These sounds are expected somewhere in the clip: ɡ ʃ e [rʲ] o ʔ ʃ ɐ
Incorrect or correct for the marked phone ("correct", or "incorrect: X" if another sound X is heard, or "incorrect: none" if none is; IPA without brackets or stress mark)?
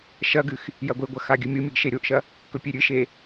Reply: incorrect: ɾʲ